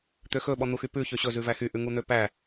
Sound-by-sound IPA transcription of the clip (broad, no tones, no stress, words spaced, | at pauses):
t̪øxɵ ɓɔn̪uxypʉ çøɕɵ zʉvæxy ʔʉŋun̪øpæ